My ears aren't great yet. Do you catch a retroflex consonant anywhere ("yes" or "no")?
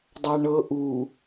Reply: yes